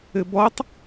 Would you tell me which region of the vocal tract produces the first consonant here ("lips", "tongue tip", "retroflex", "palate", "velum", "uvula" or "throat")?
lips